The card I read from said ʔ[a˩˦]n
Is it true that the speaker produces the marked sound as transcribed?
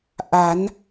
yes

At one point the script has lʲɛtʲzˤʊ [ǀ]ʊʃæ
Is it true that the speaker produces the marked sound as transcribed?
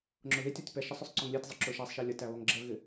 no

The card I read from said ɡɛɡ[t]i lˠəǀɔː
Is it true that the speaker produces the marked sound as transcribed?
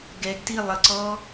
yes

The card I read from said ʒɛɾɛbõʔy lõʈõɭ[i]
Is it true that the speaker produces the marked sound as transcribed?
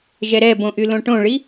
yes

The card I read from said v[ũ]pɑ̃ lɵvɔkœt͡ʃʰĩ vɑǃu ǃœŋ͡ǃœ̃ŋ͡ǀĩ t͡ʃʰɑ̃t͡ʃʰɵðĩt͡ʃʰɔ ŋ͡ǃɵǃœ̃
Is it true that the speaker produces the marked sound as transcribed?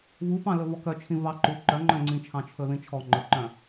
no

